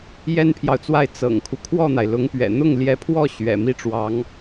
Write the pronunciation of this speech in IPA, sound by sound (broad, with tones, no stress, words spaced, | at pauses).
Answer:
jɛ˥npʰjɑ˨ʊ̯t͡swa˥˩ɪ̯ t͡sɤ̰˨˩ŋkʰu˦ kʰwɔ˥˩n̪a˩ɪ̯lʊ˧˥ŋpɥɛ̰˨˩ n̪ʊ˥˩ŋljɛ˧˥pʰwɔ˥˩ ɕɥɛ̰˨˩mi˥˩ʈ͡ʂwɑ˧˥ŋ